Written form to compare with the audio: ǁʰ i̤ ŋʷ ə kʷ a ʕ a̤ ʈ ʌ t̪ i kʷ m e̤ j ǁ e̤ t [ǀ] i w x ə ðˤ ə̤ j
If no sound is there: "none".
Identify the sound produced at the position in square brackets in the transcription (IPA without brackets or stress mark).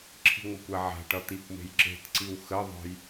ǀ